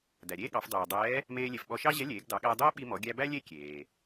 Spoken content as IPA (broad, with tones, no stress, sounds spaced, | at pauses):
d æ˩ ɾʲ eː˥ ɠ ɑ˩˧ f dˤ ɛː˩ dˤ ɛː˧˥ | m eː˧ lʲ e˩ f ɓ ɔ˧ ʃ ɑ˥ ʑ ɛ˧˥ lʲ eː˩˧ ɡ d ɑ˩˧ ɠ æ˧ dˤ ɛː˥ ɓ i˧ m ɔ˩˧ ɡʲ æ˧ b æ˥ lʲ e˥ kʲ eː˩